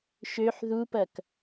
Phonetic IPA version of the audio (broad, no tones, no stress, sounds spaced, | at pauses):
ʃ ø ħ ð u p ɐ k